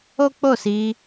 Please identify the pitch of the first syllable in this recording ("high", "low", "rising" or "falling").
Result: high